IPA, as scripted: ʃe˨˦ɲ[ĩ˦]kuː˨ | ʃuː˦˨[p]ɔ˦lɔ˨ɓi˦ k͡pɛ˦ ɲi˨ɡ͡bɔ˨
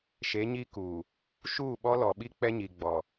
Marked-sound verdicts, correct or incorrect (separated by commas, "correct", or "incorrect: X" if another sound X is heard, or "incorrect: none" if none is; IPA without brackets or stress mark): incorrect: i˦, incorrect: ɓ